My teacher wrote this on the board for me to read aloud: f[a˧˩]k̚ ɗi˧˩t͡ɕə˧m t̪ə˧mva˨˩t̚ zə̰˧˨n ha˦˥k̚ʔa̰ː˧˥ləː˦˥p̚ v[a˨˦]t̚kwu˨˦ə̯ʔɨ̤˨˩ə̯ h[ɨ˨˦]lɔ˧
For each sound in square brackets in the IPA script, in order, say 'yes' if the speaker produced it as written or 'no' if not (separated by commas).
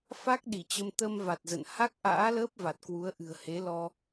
no, no, no